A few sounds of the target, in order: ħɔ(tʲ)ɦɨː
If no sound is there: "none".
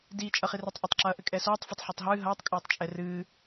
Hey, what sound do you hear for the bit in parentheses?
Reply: tˤ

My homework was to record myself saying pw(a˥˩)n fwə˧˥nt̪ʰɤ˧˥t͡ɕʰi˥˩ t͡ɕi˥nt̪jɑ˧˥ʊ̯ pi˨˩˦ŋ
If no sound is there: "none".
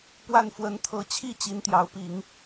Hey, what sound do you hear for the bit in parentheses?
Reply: a˥˩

